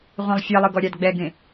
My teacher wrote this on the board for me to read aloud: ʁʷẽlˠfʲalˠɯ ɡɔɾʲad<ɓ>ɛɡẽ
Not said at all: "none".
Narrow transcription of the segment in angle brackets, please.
ɡ͡b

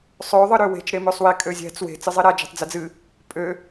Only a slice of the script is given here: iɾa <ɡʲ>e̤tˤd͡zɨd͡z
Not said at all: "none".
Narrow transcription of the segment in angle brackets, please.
d͡ʒ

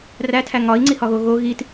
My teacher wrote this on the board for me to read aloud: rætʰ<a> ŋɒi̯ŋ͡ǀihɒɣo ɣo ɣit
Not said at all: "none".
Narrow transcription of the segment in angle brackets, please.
æ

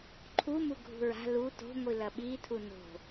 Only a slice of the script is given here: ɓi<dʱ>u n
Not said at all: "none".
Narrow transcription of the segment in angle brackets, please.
tʰ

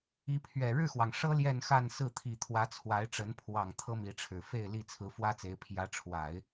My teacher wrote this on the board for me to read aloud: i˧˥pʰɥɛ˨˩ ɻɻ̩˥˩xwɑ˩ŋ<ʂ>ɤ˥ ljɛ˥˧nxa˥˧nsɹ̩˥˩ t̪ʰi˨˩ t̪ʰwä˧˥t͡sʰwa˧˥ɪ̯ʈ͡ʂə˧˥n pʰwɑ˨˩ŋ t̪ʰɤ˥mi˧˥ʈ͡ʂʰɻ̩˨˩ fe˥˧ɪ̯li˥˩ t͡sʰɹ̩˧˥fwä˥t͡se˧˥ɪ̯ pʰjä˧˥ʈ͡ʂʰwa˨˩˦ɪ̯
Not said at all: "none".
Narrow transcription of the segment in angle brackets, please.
ʂ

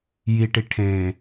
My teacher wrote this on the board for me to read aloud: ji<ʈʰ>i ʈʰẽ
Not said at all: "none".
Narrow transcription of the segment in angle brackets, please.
ʈ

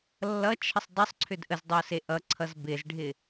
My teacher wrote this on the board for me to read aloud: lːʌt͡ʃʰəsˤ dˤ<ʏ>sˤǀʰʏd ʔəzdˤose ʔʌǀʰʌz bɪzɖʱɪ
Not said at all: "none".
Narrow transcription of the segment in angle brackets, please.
ʏ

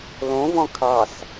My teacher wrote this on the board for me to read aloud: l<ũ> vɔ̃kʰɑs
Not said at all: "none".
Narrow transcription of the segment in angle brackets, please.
õ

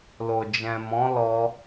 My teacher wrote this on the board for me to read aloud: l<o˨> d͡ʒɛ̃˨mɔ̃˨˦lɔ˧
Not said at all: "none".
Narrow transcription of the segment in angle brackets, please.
o˨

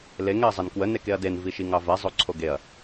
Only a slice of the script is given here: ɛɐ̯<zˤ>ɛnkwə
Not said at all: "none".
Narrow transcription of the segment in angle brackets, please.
zˤ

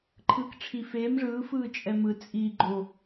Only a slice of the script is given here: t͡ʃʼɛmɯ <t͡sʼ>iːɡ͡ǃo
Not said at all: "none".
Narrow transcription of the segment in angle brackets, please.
t͡sʼ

